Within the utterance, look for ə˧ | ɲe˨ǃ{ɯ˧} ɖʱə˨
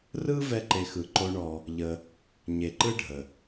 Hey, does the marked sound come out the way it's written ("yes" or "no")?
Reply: no